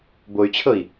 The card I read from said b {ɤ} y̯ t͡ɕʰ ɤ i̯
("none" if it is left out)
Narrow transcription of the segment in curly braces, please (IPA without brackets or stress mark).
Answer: o